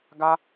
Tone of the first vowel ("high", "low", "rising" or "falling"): high